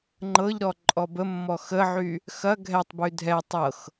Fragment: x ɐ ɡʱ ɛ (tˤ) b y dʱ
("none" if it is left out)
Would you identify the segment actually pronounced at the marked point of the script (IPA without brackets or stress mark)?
tˤ